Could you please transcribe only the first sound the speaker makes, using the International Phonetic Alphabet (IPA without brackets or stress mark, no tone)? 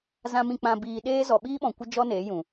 z